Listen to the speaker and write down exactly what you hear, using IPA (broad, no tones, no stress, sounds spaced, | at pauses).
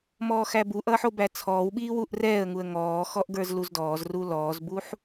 m ɔː x æ b u ʔ ʌː ħ o b æ t͡sʰ ɔː w ɓ iː w u ʔ r ɛː ə̯ ŋ u ə̯ ŋ ɔː x ɔ ʔ ɡ ə˞ z l u z d ɔː z r u l ɔː z b u ħ